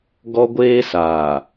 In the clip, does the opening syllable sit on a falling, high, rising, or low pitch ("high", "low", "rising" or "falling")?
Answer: high